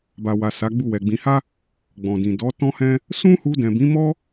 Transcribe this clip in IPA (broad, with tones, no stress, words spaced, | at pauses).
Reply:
ba˨wa˨ sa˨˦ɡ͡bu˦˨wɛ˨ɡ͡bĩ˧ ha˦ | ɡ͡bɔ̃˨dĩ˨ dɔ˨˦tɔ̃˦hɛ̃˦ | sũ˦hu˧ dɛ̃˨bĩ˨˦mɔ˦